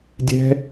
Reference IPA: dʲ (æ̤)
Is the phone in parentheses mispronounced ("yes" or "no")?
yes